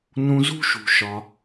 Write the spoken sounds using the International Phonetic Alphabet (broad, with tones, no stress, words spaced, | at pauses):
nũ˧zṳ˥ʃṳ˩ʃɒ˩